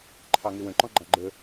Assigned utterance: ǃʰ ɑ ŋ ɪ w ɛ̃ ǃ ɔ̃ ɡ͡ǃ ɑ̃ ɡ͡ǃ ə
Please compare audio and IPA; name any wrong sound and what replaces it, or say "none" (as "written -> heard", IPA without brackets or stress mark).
ɛ̃ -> ə̃